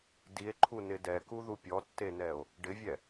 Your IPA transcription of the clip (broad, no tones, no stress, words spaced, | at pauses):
die̯ǃʰunɪ dɛkuðu pʲɔtːenɛo̯ | ɖɪvʲɛ